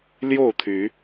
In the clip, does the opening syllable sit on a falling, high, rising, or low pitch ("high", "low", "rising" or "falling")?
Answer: falling